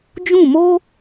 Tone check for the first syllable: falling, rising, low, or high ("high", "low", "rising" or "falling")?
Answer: falling